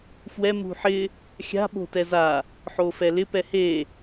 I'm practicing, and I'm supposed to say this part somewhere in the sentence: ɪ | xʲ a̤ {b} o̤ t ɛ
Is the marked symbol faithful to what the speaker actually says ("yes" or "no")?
no